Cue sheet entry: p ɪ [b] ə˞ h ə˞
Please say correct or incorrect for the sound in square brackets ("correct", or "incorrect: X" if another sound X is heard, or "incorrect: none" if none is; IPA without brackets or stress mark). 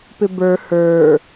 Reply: correct